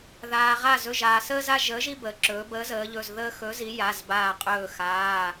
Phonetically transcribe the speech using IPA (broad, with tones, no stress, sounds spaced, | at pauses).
ð aː˩ ʁ a˧˩ z ɵ˩˧˩ ʒ aː˩ s əː˦ z a˦ ʒ əː˨˥ ʒ i˦ b əː˩ ǁ ɵː˩˧ b əː˨˥ z əː˩˧ ʎ ɵ˩˧˩ z ð əː˦ x ɵ˨˥ z i˨˥ j a˩˧˩ z b aː˧˩ qʼ ɵː˧˩ x aː˩˧˩